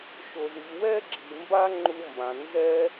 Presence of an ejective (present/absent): absent